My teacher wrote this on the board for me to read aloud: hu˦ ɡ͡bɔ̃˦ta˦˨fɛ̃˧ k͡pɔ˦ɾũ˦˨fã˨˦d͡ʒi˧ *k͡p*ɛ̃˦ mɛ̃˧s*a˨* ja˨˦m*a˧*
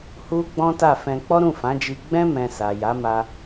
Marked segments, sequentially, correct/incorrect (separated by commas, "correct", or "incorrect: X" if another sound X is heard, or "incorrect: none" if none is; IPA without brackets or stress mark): incorrect: ɡ͡b, correct, correct